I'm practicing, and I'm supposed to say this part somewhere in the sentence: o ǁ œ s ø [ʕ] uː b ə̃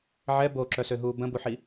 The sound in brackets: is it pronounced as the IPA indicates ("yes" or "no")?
no